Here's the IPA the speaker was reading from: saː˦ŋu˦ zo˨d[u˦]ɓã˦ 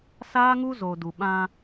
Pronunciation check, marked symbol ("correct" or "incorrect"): incorrect